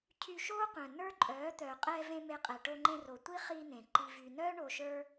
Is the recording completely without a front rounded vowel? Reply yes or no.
no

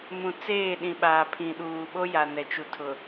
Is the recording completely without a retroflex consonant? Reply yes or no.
yes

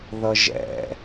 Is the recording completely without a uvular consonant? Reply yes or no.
yes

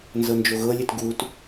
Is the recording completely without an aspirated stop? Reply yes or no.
yes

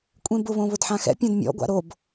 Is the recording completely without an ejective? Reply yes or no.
no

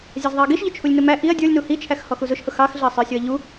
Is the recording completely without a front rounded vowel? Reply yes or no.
yes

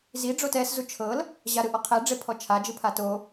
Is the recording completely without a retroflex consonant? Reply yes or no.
no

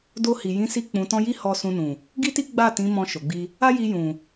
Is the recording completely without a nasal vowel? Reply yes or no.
no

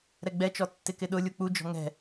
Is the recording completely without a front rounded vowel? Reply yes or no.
yes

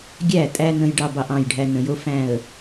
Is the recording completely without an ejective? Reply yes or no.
no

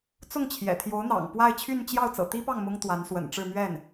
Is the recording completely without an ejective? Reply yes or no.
yes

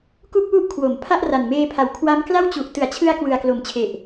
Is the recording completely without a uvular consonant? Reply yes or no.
yes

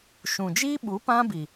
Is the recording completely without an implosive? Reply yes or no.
no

